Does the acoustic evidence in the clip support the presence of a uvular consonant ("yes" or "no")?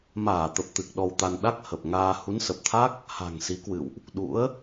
no